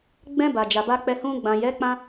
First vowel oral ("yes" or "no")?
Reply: no